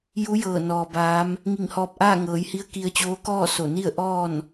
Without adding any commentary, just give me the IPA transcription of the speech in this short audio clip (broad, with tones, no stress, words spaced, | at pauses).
ju˧˥jɤː˧˩ nɔː˩baː˧˥m | ŋi˧˩ŋhɔː˧p̚ʔaː˥˨ ŋɤː˩˧jhi˧˥ə̯ ki˧ə̯t͡ɕoː˧˥kɔː˥˨ so˧˩ni˥˨ə̯ ʔɔː˥˨n